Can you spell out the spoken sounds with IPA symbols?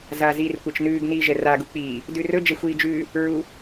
z aː z iː r kʷ ɛ t͡ʃ n ʉː ɡ n iː ʒ ɛ r a ɡ u k͡p iː | d ʉ r ɵ d͡ʒ ɛ xʷ iː d͡ʒ ʉː | ɹ u

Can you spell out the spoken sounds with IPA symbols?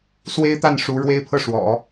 s w e˥ ɪ̯ t̪ a˥˩ n ʂ u˧˥ ɻ w e˥ ɪ̯ pʰ ɤ˥˩ ʂ w ɔ̰˨˩˦

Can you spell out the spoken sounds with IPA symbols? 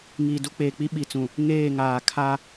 ŋ iː˨ d u˦ k͡p eː˨ k͡p i˦ ɓ i˨ t͡s ũ˨ | ŋ eː˦˨ ŋ aː˨ kʰ a˦

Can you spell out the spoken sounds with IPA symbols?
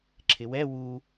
ǁʰ ɪ w ɛ w u

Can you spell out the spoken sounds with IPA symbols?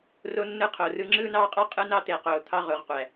r o˦ nː ɯ˦ qʰ o˨ r ɯ˦ ŋ͡ǁ ɯː˦ n ɑː˦ qʼ ɑ˦ qʼ ɯ˦ n ɑ˦ t̪ e˨ q oː˨ t̪ʰ ɑ˦ ʁ o˨ ʁ qʷ æ˨

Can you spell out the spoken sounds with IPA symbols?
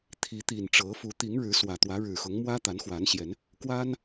t̪ʰ i˨˦ t̪ i˨˩ n ʈ͡ʂ ɤ˨˦ f u˨˦ t̪ i˨˦ ŋ ɻ ɻ̩˨˦ s w ä˨˩ t̪ w ä˨˦ ɻ ɻ̩˨˩ x ʊ˨˦ ŋ m w ä˦ t̪ a˨˦ n x w a˨˦ n ɕ j ɛ˨˦ n | k w a˦ n

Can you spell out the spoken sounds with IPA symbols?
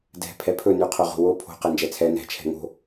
d ɛ̤ pʰ ɛ pʰ ɵ n y qʰ o ʁ o̤ w o pʰ o̤ q ɛ n d͡ʒ ɛ t͡sʰ ɛ n ɛ̤ t͡ʃʰ ɛ̤ ŋ o̤

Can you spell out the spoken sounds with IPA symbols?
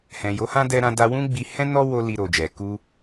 h ɛ̃˨ j o˨˦ h ã˦ d ɛ˧ ɾ ã˧ d a˧ w ũ˦ ɡ͡b i˧ h ɛ̃˦ n ɔ˦ w o˦ l i˧ ɾ o˨ d͡ʒ ɛ˨ k u˧

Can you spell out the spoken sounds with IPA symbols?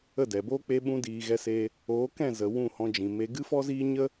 ə˦˨ d ɛ˨ b oː˦ k͡p e˧ ɓ ũ˧ d iː˨ ɣ ɛ˧ s e˧ | oː˨˦ k ɛ̃˦˨ z ə˨ w ũ˦˨ h ɔ̃˧ d͡ʒ ĩ˨ m e˧ ɡ ɨ˦ f ɔ˦ z iː˦ ɲ ə˦

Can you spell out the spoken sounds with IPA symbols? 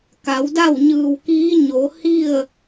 k a˩˧ w d a˥˨ w ɲ ɯː˧˩ w k iː˧˥ ɲ o˩˧ h i˥˨ ə̯

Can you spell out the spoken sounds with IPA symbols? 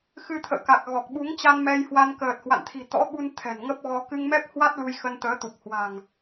x ɨ˧ t̪ʰ ə̰ː˧˨ k a˨˩ k̚ ɣ ɔ˨˩ k̚ ɓ u˨˦ ŋ t͡ɕ a˧ n m ɛ˧ j h w a˧ n k əː˨˩ t̚ h w a̰˧˨ n t̪ʰ i̤˨˩ t̪ ɔ̰˧˥ ɓ u˧ n t̪ʰ ɛ̤˨˩ n ŋ ə˦˥ p̚ ɣ ɔ˧ k ɨ˧ ŋ m ɛ˦˥ p̚ h w a˦˥ t̚ l u˧ j x ə˧ n t̪ əː˨˦ t̪ u˨˩ p̚ h w a̤˨˩ ŋ

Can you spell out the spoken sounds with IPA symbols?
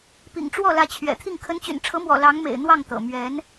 p ḭ˨˩ ŋ ʈ͡ʂ w ɔ˥˩ l ä˧˥ t͡ɕʰ ɥ ɛ̰˨˩ t̪ʰ i˥˩ ŋ kʰ ə˧˥ n t͡ɕ y̰˨˩ n ʈ͡ʂʰ ɤ˧˥ m w ɔ̰˨˩ l ɑ˧˥ ŋ m ḛ˨˩ ɪ̯ n̪ w ɑ˥˩ ŋ t̪ ɤ̰˨˩ m ɥ ɛ˧˥ n

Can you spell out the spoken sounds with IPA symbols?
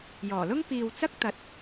j ɔː˨˩ l ʊ˥ ŋ p iː˨ w t͡s ɐ˥ k̚ t̪ ɐ˨ t̚

